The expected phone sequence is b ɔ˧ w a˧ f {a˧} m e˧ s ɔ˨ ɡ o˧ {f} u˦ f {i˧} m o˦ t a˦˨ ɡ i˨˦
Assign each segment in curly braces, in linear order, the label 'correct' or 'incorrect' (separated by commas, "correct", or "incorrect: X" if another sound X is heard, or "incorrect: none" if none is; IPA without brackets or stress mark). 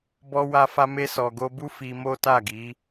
correct, incorrect: b, correct